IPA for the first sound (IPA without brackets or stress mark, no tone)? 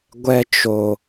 ɡʷ